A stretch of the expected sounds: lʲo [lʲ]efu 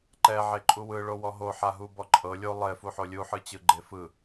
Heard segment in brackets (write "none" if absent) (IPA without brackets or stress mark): lˠ